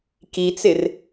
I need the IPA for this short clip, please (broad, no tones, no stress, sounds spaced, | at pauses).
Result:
k i t͡s ɪ r